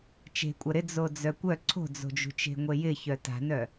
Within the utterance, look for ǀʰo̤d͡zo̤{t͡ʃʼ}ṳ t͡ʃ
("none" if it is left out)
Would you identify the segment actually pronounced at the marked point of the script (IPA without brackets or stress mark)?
d͡ʒ